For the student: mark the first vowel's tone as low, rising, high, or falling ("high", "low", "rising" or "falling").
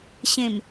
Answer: low